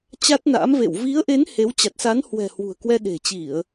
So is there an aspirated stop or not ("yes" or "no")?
no